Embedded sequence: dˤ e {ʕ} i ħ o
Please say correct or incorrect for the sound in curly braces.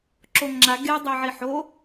correct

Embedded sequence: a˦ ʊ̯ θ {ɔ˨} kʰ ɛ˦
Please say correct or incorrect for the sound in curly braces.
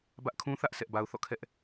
incorrect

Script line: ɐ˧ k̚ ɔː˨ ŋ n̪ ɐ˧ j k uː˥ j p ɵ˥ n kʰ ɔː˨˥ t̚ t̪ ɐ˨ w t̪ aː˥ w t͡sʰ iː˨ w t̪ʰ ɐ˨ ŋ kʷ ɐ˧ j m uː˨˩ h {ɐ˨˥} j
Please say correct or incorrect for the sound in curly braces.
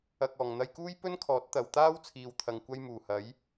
correct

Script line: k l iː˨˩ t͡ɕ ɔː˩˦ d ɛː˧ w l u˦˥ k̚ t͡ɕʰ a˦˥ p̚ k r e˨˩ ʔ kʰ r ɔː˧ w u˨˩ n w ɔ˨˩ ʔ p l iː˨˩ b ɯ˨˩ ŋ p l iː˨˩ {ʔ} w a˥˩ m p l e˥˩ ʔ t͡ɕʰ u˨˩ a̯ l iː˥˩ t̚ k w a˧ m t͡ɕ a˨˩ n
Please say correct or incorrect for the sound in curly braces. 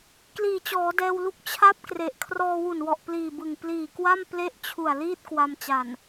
incorrect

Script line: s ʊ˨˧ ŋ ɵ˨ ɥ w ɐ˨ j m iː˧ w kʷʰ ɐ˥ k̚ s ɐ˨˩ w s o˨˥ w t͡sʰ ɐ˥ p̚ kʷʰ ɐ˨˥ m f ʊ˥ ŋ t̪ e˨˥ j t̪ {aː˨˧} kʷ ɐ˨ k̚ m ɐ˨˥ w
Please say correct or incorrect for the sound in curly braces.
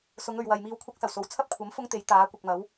incorrect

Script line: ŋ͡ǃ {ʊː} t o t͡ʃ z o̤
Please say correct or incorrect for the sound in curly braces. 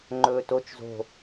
incorrect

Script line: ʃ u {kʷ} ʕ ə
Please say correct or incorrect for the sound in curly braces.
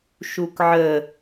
incorrect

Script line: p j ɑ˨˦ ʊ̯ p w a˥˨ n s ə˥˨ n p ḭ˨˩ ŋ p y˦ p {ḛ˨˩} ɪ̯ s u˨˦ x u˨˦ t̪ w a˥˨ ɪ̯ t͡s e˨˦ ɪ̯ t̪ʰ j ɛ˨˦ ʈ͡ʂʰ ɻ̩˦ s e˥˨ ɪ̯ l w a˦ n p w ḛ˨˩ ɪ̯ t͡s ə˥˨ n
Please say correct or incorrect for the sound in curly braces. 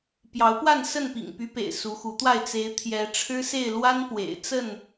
correct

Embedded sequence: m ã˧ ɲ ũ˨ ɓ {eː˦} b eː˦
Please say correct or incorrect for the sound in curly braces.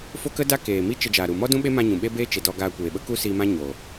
incorrect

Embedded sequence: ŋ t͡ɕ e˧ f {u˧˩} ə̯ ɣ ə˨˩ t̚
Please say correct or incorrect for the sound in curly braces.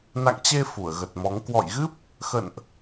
correct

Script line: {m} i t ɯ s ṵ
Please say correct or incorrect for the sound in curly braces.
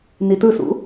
incorrect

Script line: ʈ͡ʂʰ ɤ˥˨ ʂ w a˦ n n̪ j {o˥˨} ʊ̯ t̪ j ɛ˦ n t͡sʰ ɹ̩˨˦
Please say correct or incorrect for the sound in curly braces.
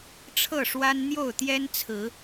correct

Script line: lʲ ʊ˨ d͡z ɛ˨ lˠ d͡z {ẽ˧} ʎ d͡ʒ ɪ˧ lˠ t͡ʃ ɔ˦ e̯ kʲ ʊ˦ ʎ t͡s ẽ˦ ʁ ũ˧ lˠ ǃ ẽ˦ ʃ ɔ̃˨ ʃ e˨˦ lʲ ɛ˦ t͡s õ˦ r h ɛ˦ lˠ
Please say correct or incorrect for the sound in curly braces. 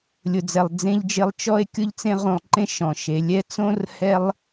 correct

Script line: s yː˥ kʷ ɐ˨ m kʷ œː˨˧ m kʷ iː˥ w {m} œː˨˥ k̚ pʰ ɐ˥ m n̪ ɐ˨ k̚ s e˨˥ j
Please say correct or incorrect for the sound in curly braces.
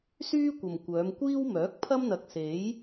correct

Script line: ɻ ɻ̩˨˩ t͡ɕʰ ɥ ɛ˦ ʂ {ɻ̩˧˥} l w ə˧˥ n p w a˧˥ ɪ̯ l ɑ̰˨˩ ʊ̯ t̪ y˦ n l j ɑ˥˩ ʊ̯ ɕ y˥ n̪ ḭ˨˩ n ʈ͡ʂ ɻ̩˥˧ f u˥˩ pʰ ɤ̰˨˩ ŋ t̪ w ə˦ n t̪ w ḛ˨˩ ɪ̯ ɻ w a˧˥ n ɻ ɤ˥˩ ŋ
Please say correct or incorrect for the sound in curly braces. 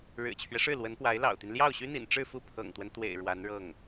incorrect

